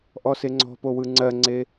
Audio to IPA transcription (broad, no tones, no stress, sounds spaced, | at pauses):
ʔ ɔ s e ŋ͡ǀ ɔ̤ p o w ɯ ŋ͡ǀ ɜ ŋ͡ǀ e